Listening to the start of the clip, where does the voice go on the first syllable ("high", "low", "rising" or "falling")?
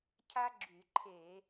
high